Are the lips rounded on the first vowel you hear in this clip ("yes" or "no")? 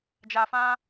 no